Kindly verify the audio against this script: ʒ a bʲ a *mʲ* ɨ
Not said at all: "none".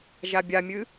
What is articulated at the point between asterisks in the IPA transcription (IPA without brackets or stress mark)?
mʲ